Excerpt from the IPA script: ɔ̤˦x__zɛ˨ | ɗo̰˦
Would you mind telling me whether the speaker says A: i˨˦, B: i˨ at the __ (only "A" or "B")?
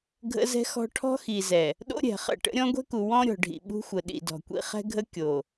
B